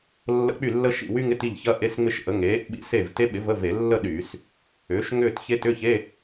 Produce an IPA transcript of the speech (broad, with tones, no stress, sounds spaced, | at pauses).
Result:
lː ə̰˧˥˧ k͡p y˥˩ lː ə˦˥ ʃ ḭ˥˩ w y˦˥ ŋ ɪ˧˥˧ t i˥˩ ʎ ç ɐ˧˥˧ ʔ e˧˥˧ s ŋ͡m ɪ˦˥ ʃ ʔ ə˩˥ ŋ eː˩˥ ʔ ɓ ḭ˦˥ s e˥˩ v t e˦˥ ɓ ɪ˩˥ v ə˧˥˧ v e˧˩˧ lː ə˥˧ ɗ yː˧˩˧ s | ʏː˩˥ ʃ ŋ ʏː˥˧ t ç e˦˥ t ʏ˧˥˧ ç e˧˥˧